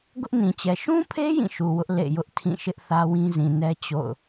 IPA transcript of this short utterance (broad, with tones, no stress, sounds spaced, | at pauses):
ɡ ʊ˦ ʔ n ĩ˨ t͡ɕ ɛ˨ ʃ ũ˦ pʰ e˦ j ĩ˦˨ ʃ u˨ w ʊ˦ ʔ l ḛ˦˨ j ʊ˦ ʔ tʰ ĩ˦˨ ʃ ɪ˦ ʔ θ ä˦ w ĩ˦ z ĩ˨ n ɛ˦ t͡ɕ o̰˦˨ ʊ̯